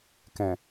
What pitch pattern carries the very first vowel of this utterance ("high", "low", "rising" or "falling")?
low